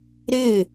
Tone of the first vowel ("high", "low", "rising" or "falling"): falling